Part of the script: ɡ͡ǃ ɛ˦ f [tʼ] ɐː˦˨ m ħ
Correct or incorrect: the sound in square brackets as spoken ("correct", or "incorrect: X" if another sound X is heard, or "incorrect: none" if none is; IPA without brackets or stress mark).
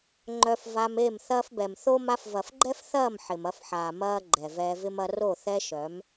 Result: incorrect: θ